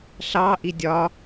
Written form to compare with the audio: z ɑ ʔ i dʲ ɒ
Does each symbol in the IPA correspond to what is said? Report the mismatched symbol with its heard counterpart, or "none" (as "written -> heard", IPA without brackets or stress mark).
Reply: z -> ɬ